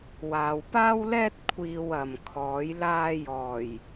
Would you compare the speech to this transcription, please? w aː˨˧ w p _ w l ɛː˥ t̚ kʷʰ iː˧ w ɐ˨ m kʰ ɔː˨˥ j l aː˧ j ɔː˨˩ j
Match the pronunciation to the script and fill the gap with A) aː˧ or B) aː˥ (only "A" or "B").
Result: B